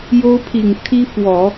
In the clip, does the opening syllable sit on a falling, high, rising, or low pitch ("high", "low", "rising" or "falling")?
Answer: high